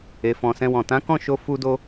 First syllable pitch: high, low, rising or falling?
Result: low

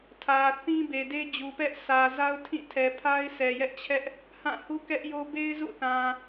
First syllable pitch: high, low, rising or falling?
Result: low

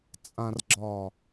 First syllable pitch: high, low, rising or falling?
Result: low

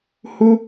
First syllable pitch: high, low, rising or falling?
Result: high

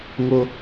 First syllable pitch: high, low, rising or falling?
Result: high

